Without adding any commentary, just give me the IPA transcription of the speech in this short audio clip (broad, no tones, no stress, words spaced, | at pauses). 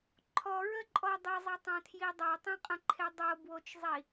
ǃʰɔɹəǃʼɔ dˤezˤetˤãtʰji dˤætˤĩqʼə̃ǃʰe dˤobwot͡ʃzˤi